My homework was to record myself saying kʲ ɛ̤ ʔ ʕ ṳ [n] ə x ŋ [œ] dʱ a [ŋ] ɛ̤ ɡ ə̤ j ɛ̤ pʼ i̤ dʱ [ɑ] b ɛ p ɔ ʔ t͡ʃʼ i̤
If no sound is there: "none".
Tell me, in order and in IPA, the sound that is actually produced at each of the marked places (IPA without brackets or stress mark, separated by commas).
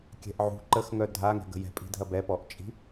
ǃ, œ, ŋ, ɐ